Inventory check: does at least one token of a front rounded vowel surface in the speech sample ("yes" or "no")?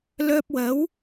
yes